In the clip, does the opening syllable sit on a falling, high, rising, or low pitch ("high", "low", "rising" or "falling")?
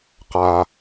low